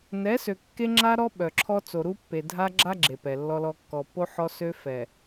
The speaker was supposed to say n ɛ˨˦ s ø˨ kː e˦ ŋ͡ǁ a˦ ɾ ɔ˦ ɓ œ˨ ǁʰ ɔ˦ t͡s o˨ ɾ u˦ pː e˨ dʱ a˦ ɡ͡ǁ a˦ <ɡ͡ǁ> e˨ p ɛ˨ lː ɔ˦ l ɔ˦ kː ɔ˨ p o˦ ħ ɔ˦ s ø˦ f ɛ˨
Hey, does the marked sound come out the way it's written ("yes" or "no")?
yes